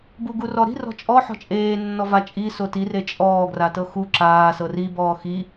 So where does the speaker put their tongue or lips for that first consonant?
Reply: lips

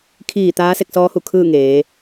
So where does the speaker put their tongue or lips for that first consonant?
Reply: velum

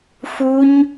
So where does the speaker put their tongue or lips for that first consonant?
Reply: lips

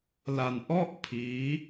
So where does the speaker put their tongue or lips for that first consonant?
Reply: tongue tip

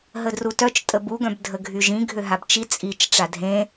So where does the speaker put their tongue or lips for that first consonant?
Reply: throat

